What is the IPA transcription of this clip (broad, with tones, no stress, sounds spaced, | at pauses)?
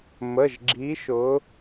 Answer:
m ə˩˧˩ ʒ ɡ͡ǁ i˨˦ ʃ ʊ˨˦